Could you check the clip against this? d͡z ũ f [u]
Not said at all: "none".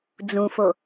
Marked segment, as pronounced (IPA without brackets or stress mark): o